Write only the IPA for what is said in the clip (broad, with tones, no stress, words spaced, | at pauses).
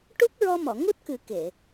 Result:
ʈu˦˥k̚ɹɔ˧mɔ˨˩˨ ŋu˦˥t̚kɨ˨˩˦ ke˨˩˨